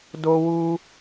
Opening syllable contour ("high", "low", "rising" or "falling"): high